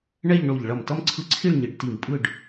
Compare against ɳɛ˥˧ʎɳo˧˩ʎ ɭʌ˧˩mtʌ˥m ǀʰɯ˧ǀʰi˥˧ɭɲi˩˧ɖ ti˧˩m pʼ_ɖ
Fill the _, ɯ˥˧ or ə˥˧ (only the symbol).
ɯ˥˧